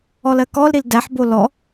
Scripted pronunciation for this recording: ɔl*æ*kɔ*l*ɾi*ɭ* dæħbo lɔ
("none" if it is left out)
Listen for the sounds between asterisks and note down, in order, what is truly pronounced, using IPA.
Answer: ɜ, l, l

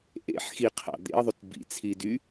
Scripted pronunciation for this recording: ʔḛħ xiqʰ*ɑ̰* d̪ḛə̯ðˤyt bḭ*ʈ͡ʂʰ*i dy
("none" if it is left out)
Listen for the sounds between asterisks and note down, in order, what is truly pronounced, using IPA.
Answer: ɑ̰, t͡sʰ

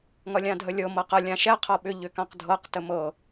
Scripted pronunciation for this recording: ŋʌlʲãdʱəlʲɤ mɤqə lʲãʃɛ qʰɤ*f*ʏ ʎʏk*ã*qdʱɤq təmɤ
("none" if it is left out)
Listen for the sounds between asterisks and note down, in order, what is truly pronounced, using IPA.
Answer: ɓ, ã

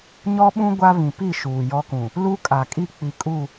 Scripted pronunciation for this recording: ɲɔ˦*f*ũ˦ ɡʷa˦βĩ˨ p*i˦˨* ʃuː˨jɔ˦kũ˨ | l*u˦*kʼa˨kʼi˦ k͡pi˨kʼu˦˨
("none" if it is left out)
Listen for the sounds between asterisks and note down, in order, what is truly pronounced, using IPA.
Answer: ɓ, i˦˨, u˦

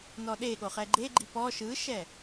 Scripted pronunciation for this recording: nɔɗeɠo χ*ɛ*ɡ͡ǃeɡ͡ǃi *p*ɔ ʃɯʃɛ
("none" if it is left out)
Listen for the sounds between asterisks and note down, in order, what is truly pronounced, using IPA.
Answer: ɛ, p

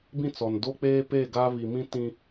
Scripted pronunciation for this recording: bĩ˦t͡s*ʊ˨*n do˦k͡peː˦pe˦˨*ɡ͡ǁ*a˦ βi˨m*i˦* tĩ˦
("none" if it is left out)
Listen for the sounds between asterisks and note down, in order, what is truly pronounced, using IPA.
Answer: ɔ˨, ɡ, ĩ˦

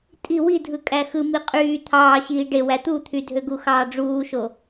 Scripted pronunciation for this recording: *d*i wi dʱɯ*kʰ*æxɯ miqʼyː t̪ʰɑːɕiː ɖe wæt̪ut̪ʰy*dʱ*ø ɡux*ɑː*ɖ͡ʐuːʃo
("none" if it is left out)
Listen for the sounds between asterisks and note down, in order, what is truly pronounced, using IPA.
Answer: tʼ, kʼ, dʱ, ɑː

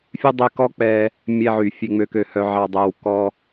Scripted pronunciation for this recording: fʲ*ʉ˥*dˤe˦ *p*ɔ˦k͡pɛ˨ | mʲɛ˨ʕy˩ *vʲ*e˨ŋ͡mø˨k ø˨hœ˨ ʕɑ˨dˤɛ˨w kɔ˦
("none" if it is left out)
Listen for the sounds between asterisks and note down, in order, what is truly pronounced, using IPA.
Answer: ʉ˥, k, fʲ

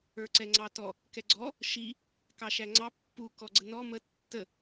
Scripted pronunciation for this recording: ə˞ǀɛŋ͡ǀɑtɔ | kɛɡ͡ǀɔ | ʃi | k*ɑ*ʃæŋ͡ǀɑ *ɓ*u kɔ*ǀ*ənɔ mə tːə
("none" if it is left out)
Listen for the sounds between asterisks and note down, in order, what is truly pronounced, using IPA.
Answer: ɑ, pː, ɡ͡ǀ

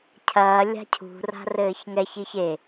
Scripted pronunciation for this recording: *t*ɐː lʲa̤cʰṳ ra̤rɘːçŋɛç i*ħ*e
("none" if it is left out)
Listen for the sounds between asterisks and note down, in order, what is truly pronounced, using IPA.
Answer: cʰ, ç

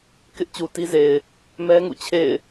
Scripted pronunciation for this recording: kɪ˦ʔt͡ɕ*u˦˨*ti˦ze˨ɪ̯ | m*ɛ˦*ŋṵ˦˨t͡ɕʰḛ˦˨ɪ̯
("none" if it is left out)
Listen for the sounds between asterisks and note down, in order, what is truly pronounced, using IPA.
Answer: u˨, ɛ˦

